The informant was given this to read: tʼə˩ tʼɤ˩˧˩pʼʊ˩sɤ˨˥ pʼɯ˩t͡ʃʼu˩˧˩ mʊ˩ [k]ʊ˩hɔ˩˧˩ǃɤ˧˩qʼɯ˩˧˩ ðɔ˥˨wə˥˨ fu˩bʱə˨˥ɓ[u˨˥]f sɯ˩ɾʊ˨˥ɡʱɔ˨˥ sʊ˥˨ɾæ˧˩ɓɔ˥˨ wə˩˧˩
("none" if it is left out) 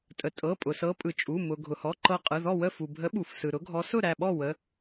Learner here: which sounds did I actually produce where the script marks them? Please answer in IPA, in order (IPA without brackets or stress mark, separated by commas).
ɡʱ, u˩